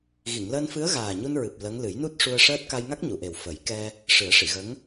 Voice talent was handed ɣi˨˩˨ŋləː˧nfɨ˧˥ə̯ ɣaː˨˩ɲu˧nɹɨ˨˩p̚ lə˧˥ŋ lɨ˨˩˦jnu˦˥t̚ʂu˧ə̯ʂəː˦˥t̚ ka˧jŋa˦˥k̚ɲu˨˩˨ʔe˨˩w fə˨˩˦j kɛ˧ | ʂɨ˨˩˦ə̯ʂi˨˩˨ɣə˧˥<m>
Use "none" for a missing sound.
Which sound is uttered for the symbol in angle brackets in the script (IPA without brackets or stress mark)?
ŋ